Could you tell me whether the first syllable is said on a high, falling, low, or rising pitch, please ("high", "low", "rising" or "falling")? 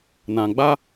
low